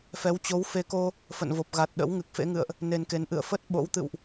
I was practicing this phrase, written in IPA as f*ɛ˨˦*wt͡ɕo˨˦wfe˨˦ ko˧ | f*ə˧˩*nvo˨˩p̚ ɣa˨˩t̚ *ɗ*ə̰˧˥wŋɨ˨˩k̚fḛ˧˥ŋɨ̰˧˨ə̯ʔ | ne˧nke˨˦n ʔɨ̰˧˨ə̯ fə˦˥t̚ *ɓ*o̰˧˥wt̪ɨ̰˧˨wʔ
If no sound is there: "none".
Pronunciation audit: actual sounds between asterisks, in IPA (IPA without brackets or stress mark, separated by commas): ɛ˨˦, ə̰˧˨, ɗ, ɓ